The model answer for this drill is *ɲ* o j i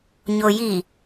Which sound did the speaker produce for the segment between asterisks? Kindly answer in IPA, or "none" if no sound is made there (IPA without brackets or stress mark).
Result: ɲ